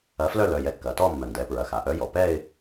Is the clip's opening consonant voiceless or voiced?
voiceless